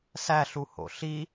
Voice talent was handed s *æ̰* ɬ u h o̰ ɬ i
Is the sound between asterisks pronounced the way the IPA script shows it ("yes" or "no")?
no